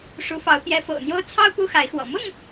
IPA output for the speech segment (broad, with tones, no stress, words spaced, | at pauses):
ʂu˨˦fɑ˨˦ʊ̯ pjɛ˨˦fo̰˨˩ʊ̯n̪jo˦ʊ̯ t͡sʰɑ˦ʊ̯ pu˦xa˨˦ɪ̯xwɔ̰˨˩ mʊ˥˨ŋ